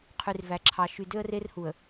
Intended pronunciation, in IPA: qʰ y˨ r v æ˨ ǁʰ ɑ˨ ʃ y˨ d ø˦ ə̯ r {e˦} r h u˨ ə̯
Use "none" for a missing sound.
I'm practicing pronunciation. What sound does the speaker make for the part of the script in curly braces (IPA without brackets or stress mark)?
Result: e˦